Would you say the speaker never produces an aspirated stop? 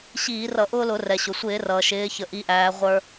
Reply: yes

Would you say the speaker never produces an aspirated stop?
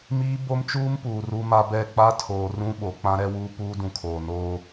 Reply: no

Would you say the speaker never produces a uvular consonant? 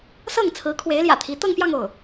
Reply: yes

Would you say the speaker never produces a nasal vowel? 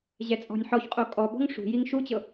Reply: yes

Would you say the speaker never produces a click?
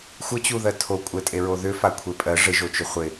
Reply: yes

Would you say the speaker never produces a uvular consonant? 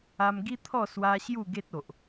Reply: yes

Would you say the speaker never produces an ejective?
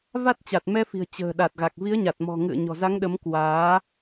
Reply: yes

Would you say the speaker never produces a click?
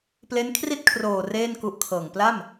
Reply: yes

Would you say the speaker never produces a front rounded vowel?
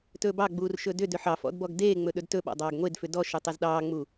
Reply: no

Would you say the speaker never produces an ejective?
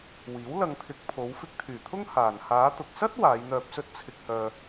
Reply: yes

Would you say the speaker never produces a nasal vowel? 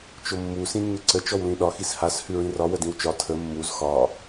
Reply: no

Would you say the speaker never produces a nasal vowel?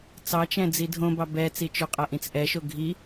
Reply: no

